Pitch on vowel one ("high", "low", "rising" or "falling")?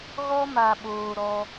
high